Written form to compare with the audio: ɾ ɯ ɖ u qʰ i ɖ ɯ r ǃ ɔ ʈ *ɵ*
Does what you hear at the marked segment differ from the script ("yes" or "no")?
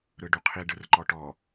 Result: yes